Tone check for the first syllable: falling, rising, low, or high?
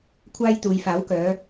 high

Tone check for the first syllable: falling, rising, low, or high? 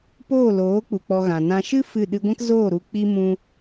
falling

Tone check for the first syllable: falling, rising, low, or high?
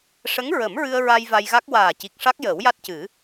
rising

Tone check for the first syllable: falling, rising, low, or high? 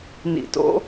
low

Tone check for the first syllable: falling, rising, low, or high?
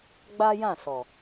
high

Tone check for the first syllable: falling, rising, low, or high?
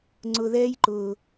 low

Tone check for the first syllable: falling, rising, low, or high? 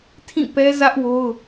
falling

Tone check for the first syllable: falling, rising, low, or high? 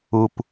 low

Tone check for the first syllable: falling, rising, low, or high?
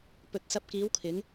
low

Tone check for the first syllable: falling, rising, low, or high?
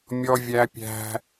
high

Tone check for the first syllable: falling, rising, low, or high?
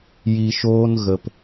low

